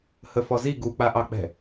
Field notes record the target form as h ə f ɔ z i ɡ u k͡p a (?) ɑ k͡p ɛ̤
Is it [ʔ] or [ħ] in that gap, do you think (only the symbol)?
ʔ